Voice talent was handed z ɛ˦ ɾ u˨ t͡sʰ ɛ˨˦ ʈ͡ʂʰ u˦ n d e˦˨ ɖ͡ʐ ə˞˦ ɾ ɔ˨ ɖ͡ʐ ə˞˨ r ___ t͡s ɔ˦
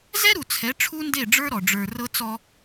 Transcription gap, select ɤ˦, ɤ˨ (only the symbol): ɤ˦